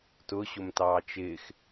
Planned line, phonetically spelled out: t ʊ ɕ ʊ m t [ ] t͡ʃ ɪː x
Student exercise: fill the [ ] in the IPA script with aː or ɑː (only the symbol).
ɑː